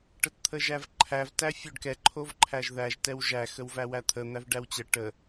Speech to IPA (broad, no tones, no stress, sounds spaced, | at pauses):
ʈ ə t t̪ʰ ə ʒ æ v ǃʰ æ v t æ fʲ o ɖ k ɛ ǃʰ o v ǃʰ æ ʒ ð æ ʒ t ɛ w ʒ æ x ə w v æ w æ t̪ʰ ə n̪ æ v ɖ æ w t͡ɕ ə ʈ ə